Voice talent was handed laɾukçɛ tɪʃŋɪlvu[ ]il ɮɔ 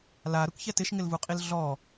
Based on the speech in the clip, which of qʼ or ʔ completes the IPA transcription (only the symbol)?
qʼ